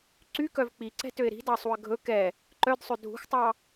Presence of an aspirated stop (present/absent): absent